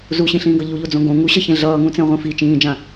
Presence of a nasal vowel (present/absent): present